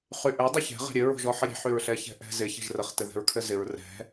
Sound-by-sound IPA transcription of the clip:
χ y ʔ ɘ dˤ ɘ ç ɛ̤ ʁ ɛ̤ ɾʲ ɘ ɹ o̤ ʒ ɔ ħ ɘ ɾʲ ɛ̤ ħ y ɹ ɬ ɛ ç ɛ̤ ʔ ɛ̤ z ɪ ç ɛ̤ ʒ r ə χ t ɘ ð ɛ̤ ɹ kʰ ɘ z ɪ ɹ r ɛ̤

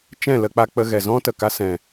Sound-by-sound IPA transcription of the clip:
t͡ʃ ɛ̃˦˨ l ə˧ k͡p a˧ k͡p ə˧ ɣ ɛ˨ z ɔ̃˦ t ə˨ k a˧ s ɛ̃˨

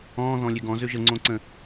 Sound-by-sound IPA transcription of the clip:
ɔ̃ː ð ɔ̃ lʲ ø ɡ ɔ̃ z ø ʒ ə ŋ͡ǀ õ ǀ ə̃

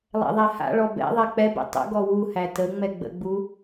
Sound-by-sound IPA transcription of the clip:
lˠ ɛ̰ ðˤ æ h a̰ ɭ ɔ b ɛ̰ ðˤ ɛ k͡p ɛ b ḛ tˤ ə̰ ɡ ɔ w u h æ t ə ŋ͡m ɛ ɡ͡b ə̰ ɡ͡b u

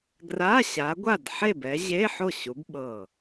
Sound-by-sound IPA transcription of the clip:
ɡ r a˧˥˧ ɕ a˨˦ ɡʷ a˥˨ d ħ e˥˨ b ɛ˨˦ ʑ e˧˥˧ ħ o˥˨ ɕ u˨˦ b ɓ ɤ˧˩

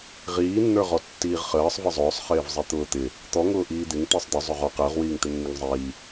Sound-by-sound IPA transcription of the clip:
ʁ iː nː ə˞ ʁ ɔ tː iː ʁ χ əː sˤ v ɪ zˤ ʊː sˤ χ ɪː v zˤ i t̪ ʊː t̪ ɪ | t̪ ɔ ŋ ʊː ʔ iː d̪ ɪ ŋ t̪ i sˤ d̪ ə zˤ ʊ ʁ ɔ q əː ʁ w iː ŋ t̪ ɪ nː ɪ ŋ zˤ iː

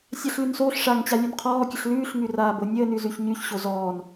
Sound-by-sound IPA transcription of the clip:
sʲ a ɬ l ʉ n s oː ɬ ʂ a ŋ t͡ɕ a lʲ ʉ n qʰ ɔː kʲ ə ɬ l ʉː ɬ ŋ ʉ r aː b o nʲ əː n ʉ z ʉ ç ɲ ʉ ç ɕ o z ɔː n

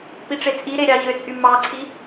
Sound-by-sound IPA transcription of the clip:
p i ʈ͡ʂ e t͡sʼ i ɾ e ɾʲ ɑ ʑ ø t͡sʼ y m ɑ ǀʰ i

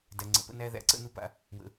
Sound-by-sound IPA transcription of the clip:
d æ˨ ŋ͡ǀ ə̰˨ p ə̰˦ n æ˦ ð æ̰˨ ǀ ə̰˦˨ n u˨˦ p a̰˨ | w ə̰˨

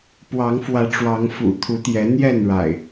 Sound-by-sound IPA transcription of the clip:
p w ɑ˨˦ ŋ f w ä˨˦ ʈ͡ʂ w ɑ˨˦ ŋ f ṵ˨˩ t̪ʰ u˨˦ t̪ j ɛ˨˦ n̪ j ɛ˥˨ n ɻ a̰˨˩ ɪ̯

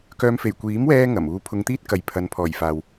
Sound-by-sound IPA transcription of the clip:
k œː˧ m f e˨˩ j kʷ iː˨˥ m w ɛː˥ ŋ ɐ˨˩ m uː˧ pʰ ʊ˧ ŋ t̪ iː˥ t̚ k ɐ˨ j pʰ ɐ˨˧ n pʰ ɔː˨˩ j f aː˨ w

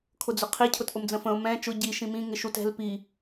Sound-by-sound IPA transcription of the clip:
kʰ ʊ d͡z ʊ qʰ i cʰ ʊ t ʔ ʊ m d͡z ə̃ f ə̃ ʊ̯ m ɛ̃ t͡ʃ ʊ ɟ i ʃ ĩ m ĩ ŋ ɪ ʃ u t ɛ̤ l p i

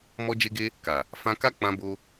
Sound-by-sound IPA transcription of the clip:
m ɔ˦ d͡ʒ e˦ ɡ e˦ | k a˨ | f ã˧ k a˦ k͡p ã˦ b o˦

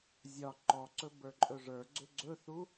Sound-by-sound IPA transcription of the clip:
zʲ ɒ ǃ ɔ ǀ ɵ b ə˞ ǃʼ ɵ ʐ ə˞ ɡ͡ǀ ʏ ɡ͡ǀ ɵ θ u

